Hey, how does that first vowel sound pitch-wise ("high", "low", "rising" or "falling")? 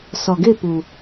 low